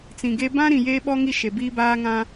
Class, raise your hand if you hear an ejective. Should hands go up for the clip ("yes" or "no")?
no